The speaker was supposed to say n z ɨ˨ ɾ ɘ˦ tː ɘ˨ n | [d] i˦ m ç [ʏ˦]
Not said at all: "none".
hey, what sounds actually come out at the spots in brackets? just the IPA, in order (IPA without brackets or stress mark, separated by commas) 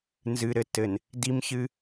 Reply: d, ɨ˦